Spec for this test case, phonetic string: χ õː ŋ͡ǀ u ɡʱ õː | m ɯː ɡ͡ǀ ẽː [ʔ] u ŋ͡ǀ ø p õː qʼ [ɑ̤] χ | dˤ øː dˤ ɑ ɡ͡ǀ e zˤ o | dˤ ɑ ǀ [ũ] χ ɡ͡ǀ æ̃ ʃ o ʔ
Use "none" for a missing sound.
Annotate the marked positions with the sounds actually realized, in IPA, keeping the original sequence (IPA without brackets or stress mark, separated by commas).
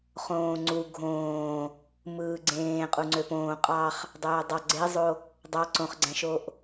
qʼ, ɑ, õ